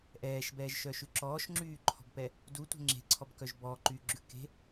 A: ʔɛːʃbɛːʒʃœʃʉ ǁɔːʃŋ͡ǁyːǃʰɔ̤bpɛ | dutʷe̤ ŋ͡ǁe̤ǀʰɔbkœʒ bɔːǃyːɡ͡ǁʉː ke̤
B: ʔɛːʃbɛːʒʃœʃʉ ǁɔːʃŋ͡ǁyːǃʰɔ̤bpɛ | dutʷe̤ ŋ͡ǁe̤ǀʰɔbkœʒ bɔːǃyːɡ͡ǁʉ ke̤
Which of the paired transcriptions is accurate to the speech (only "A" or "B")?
B